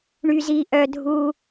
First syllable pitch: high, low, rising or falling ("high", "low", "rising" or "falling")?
high